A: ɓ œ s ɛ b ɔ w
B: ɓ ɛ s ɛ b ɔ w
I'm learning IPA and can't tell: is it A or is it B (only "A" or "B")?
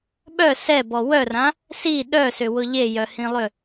A